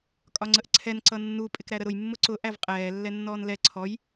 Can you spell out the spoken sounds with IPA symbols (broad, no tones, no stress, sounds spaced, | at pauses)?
kʼ ɒ ŋ͡ǀ ə ʔ ǀʰ ɛ n ǀ ʌ nː u pʼ ɪ k ɾ æ ɾ ə ɾ ʊ j mː ʊ ǀ ʊ ʔ æ v qʼ ɛː lː ɛ nː ɔː n l ɛ ǀʰ ɔ j